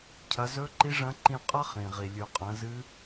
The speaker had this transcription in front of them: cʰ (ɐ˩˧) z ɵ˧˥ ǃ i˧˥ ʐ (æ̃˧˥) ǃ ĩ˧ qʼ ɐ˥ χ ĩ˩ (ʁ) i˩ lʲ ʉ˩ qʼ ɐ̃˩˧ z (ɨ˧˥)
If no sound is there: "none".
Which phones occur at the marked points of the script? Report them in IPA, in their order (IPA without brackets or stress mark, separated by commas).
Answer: ɐ˩˧, ɐ̃˧˥, ʁ, ɨ˧˥